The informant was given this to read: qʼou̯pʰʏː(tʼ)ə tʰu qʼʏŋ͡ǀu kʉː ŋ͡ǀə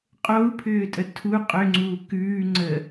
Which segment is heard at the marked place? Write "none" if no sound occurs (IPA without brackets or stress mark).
tʼ